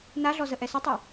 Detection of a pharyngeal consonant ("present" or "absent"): absent